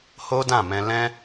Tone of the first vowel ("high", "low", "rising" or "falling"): high